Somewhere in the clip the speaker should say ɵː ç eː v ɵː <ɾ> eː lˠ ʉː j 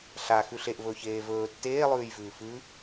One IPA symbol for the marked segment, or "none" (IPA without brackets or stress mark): tː